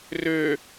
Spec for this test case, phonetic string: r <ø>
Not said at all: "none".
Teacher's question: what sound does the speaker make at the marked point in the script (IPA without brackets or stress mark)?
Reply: ø